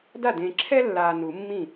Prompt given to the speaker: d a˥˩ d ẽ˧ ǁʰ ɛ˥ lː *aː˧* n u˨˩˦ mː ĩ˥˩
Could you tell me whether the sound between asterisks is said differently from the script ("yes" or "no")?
no